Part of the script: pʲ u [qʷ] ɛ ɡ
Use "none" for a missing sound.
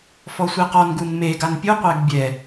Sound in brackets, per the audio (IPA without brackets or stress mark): qʷ